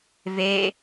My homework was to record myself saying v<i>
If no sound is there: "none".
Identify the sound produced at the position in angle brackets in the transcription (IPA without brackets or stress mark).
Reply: e